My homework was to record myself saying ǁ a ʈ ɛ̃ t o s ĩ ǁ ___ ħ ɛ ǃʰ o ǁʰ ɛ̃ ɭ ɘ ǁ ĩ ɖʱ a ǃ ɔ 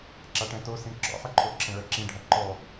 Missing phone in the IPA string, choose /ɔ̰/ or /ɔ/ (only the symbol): ɔ̰